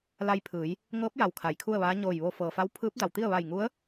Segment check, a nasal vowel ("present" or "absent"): absent